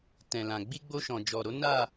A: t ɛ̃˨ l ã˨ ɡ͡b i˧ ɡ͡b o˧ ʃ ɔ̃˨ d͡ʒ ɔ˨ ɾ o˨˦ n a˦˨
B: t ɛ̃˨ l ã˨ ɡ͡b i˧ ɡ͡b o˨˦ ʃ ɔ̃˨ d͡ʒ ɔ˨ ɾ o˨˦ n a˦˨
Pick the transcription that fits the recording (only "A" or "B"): A